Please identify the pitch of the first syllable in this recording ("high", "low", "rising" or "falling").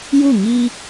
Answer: falling